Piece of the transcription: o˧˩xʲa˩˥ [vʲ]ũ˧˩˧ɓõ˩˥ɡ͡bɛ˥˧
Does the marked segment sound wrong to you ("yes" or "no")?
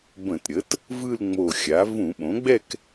yes